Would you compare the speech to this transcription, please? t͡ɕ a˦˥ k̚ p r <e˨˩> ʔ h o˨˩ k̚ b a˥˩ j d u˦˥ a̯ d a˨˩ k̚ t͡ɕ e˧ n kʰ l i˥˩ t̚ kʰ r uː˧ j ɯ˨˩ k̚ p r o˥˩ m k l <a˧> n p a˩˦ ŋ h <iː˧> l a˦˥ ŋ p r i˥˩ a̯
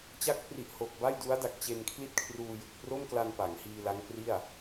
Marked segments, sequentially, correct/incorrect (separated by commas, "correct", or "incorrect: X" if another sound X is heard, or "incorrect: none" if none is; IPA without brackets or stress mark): incorrect: i˨˩, correct, correct